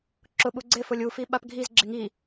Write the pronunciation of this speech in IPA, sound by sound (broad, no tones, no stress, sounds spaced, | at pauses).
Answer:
ǁ ʊ ɓ u ɡ͡ǀ ɪ f ʊ lʲ u f i ɓ a p ɡʱ i z ɡ͡ǁ ɪ ŋ i